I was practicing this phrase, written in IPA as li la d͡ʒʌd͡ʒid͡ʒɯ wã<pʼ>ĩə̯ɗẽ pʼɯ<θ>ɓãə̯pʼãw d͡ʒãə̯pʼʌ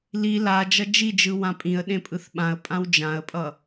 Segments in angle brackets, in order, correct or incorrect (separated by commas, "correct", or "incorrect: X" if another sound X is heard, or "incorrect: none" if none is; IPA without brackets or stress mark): correct, correct